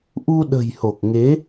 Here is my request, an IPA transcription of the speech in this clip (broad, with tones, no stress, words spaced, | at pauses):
ʔu˧ɗə̤˨˩j ho˨˩k̚ŋe˨˦